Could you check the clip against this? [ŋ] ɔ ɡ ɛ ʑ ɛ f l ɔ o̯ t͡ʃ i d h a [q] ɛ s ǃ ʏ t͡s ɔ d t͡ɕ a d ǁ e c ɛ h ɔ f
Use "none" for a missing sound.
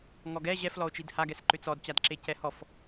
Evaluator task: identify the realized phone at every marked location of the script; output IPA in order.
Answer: ŋ, ɡ

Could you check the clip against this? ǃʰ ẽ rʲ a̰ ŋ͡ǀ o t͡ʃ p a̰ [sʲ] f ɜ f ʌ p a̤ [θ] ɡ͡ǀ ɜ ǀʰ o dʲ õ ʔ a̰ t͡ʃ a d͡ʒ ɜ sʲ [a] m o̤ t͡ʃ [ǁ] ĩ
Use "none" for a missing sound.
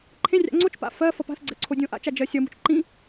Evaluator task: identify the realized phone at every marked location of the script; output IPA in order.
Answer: none, θ, ʌ, ǃ

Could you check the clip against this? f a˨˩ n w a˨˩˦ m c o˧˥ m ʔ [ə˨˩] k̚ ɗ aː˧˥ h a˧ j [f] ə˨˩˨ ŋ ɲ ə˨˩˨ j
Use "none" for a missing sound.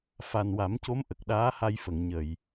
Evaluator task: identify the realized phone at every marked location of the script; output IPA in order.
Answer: ə˨˩, f

